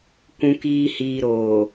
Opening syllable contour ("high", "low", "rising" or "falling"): low